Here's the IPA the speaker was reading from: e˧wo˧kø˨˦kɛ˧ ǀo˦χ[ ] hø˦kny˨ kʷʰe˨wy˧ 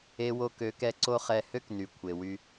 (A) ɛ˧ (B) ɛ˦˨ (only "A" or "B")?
B